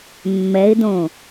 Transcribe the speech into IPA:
mːɛɪ̯dõ

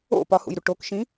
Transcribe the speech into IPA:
o̰ pɒhṵjɾu ʈokʃĩ

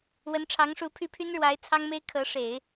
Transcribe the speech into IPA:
wə˧˥nʈ͡ʂʰɑ˧˥ŋʂu˧˥pʰy˥ pʰy˥nɻwa˧˥ɪ̯ t͡sʰɑ˥ŋme˥ɪ̯kʰɤ˧˥ ʂe˨˩˦ɪ̯

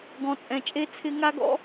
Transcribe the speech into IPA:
ɡɔ̃˨t͡sʼɛ̃˨t͡ʃʼe˧ t͡sʰɪ˧ŋa˦ɡɔ̰˦

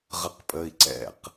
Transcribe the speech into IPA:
ʁəqpʼəi̯ǀɛ̰q

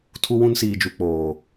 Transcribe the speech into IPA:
tʰu˦wũ˦nsiː˨d͡ʒu˨ k͡poː˨

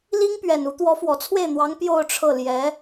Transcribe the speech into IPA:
li˥ŋpɥɛ˨˩nu˧˥ t̪wɔ˧˥fwɔ˨˩t͡sʰwe˥˩ɪ̯n̪wɑ˧˥ŋ pjo˥˧ʊ̯ʈ͡ʂʰɤ˥˩ ljɛ˧˥

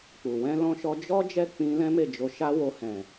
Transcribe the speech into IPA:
k͡pu˨ wɛ̃˧lɔ̃˧ʃɔ˧ d͡ʒɔ˦ d͡ʒɛ˦˨ k͡pĩ˧ lɛ̃˦me˦˨d͡ʒo˧ʃa˦ wo˧ hɛ̃˨

